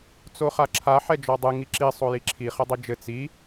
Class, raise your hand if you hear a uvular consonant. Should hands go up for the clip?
yes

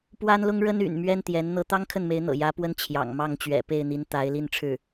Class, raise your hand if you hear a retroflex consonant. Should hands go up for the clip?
yes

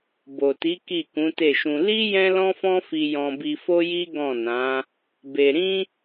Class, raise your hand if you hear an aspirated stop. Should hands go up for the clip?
no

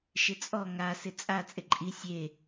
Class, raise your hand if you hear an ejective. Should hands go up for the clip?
yes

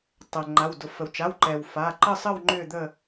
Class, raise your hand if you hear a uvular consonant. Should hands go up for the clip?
no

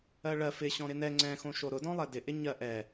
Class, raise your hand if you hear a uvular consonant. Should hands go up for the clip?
no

